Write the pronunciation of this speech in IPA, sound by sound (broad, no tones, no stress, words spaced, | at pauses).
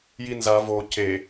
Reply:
jinza vo ce